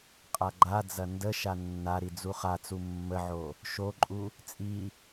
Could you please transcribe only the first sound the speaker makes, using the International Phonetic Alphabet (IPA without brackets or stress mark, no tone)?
qʼ